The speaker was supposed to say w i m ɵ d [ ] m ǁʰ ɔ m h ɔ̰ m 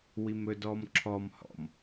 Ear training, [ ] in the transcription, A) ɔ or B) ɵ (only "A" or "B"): A